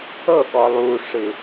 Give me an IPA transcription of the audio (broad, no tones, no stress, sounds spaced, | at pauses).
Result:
ɤ ɠ ɔ lˠ u ʂ ɯ